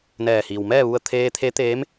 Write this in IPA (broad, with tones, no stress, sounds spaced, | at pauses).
n ɛː˧˩ h iː˩ w m ɛː˥˨ ʋ u˧ ə̯ t̪ʰ eː˧ t̪ʰ e˧˥ t̪ eː˧˥ m